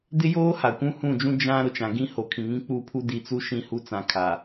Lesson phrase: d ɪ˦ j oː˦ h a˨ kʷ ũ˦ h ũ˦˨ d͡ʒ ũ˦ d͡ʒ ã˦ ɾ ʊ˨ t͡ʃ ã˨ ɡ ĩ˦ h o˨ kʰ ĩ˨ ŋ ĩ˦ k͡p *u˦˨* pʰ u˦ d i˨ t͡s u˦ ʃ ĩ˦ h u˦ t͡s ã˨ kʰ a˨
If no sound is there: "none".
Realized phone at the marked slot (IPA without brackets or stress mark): u˦˨